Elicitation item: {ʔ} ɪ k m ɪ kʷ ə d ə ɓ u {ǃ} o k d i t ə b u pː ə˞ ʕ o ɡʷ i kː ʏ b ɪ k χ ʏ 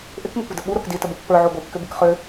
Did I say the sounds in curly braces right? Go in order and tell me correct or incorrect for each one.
correct, incorrect

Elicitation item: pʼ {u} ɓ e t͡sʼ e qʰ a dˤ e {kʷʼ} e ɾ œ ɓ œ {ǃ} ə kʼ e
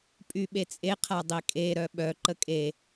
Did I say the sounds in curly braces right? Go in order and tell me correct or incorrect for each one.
incorrect, incorrect, correct

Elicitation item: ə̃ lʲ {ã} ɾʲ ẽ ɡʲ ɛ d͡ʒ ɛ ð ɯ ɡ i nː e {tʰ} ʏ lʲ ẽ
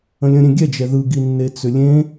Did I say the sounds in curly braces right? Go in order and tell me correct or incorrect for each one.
incorrect, incorrect

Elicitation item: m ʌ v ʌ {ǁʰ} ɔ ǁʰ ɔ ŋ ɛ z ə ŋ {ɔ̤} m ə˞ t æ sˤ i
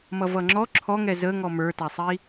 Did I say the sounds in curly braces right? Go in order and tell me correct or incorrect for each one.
incorrect, incorrect

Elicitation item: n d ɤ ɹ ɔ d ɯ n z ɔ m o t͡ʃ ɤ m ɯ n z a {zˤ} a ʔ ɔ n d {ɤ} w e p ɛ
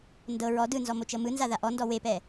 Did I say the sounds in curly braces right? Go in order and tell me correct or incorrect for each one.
incorrect, incorrect

